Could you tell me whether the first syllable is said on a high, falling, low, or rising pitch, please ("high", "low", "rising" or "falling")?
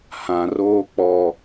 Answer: low